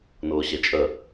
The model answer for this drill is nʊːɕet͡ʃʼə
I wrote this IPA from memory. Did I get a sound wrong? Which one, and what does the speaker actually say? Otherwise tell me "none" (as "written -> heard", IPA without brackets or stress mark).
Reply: none